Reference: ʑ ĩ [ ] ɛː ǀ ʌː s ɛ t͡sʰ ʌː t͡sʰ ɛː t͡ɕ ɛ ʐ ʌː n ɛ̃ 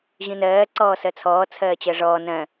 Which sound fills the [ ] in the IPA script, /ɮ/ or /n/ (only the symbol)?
n